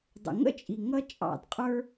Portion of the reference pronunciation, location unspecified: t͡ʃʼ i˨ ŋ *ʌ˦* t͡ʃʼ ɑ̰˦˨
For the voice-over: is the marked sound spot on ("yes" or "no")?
yes